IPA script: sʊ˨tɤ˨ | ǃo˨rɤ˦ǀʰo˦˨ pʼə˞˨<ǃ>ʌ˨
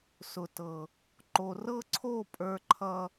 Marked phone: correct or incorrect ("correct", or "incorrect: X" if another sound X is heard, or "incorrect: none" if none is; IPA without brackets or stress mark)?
incorrect: ǃʰ